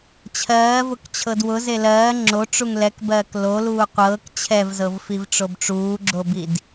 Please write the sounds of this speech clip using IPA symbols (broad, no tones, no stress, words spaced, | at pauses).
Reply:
t͡ɕʰɜːvʊk t͡ɕʰɤdwʊ zelɜː ŋ͡ǁo ʈ͡ʂuŋlɛkbɜːk loluː qʷɤːk t͡ɕʰɛvzɤvfiv ʈ͡ʂobʈ͡ʂuːɡ͡ǁobid